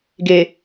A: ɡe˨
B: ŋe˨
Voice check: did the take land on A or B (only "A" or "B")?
A